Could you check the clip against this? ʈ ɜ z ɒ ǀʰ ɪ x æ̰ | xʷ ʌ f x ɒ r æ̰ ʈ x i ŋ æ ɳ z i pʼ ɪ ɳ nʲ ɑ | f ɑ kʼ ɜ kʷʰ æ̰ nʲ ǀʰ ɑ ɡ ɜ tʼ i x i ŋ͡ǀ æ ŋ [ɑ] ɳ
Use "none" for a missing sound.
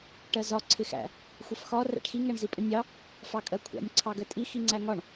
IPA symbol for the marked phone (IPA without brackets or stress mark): ɒ